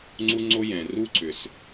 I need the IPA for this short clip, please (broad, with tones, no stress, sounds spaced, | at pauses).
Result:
ŋ͡ǀ u˦ ŋ͡ǀ o˦ j ɛ̃˩ r u˦ ǀ ʏ˩ s